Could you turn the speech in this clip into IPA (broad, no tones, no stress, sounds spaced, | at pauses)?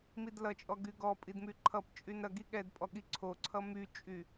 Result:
m i d l ʌ t͡ʃʼ ɔ ɡ y ɡ ɔ pʼ i d m y ǃʰ ʌ p t͡ʃʼ y n ɾ ʌ ɡ i ɠ ɛ d pʼ ɔ ɠ i ǀʰ o ǀʰ ʌ m y t͡ʃʼ y